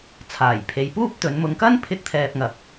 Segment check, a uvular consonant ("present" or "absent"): absent